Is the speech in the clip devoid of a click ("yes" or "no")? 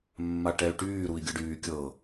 yes